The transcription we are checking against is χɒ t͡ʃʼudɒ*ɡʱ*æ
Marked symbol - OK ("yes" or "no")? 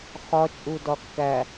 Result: no